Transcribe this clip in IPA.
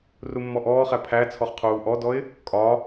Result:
rumːɔʔɔːχæ pʰæ t͡sʰɔχqʰuːʔɔdɔɪ̯ | kʼɒ

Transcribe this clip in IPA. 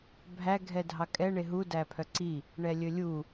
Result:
bʱæ ɡʱɛdʱɑkʼɛ ɳeɦu dæpʰœǀi | ɳɛlʲɵlʲu

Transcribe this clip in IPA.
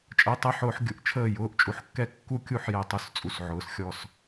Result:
t͡ʃʼɜ˩˥tˤɛ˩˧˩ħʊː˧˩˧ħɡʲʊ˩˧˩ʔ t͡ʃʰəː˥˩jʊː˩˧˩ʔ t͡ʃʼu˩˥ħkːɛ˥˩ kːu˥˩kʲu˥˩ħ jɛ˧˩˧tˤʊ˩˧˩s t͡sʼu˩sʕʊː˩s xʲɔ˥˩s

